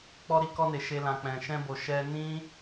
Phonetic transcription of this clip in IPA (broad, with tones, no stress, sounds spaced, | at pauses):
k͡p ɔ˧ ɾ i˧ k ɔ˧ n e˨ ʃ e˧ l ã˨ k͡p ɛ̃˨ ʃ ɛ̃˧ b o˨ ʃ ɛ˧ n ĩ˧